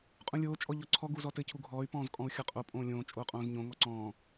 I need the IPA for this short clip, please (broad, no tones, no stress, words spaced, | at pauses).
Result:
qʼũlʲoː t͡ʃʼɔʎɔǀʰɔ ɡuzɔtɘ cʰuɡʱɔːy̯ pɔ̃ːzkʼɔ̃u̯xʲɔqʼo pʼõːlʲõː t͡ʃʼoːqʼõːzɲõ ŋɔǀɔ̃ː